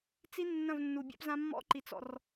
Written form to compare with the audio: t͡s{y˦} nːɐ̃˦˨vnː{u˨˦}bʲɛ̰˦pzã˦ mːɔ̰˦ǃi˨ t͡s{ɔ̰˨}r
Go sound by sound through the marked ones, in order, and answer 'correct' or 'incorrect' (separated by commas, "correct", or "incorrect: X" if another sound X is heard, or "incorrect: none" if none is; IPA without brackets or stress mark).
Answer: incorrect: i˦, incorrect: u˨, correct